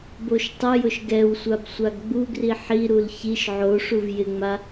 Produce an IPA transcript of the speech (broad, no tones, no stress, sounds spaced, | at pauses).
b o ʃ tˤ ʊ j ʊ ʃ ɡ ɛ w sʷ a b sʷ a ɡ ɡ͡b u ɡ r i ħ i ɾ u l ç i ʃ ʕ o ʂ u v j ɪ ŋ͡m a